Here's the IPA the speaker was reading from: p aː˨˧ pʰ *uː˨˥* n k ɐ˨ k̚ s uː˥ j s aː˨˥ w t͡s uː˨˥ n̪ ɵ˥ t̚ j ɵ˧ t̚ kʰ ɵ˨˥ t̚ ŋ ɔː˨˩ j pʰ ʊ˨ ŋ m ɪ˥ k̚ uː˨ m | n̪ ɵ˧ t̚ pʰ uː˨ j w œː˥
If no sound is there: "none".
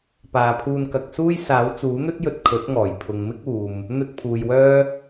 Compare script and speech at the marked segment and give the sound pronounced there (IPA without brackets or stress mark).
uː˧